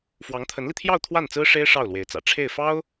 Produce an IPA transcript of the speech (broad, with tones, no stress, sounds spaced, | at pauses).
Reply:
f w ɑ˧˥ ŋ t̪ʰ ə˧˥ n l i˧ t̪ʰ j ɑ˥˧ ʊ̯ t̪ʰ w a˥˩ n t͡s ɹ̩˥ ʂ e˥ ɪ̯ ʂ ɑ˥˩ ʊ̯ l w e˧˥ ɪ̯ t͡s ä̰˨˩ ʈ͡ʂʰ e˥˩ ɪ̯ f ɑ˥ ʊ̯